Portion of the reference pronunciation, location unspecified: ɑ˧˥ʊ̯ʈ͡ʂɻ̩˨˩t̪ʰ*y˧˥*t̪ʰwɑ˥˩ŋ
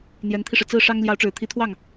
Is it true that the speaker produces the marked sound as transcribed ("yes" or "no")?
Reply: no